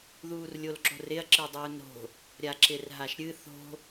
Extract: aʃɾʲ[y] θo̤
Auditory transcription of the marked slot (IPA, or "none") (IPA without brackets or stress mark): ɨ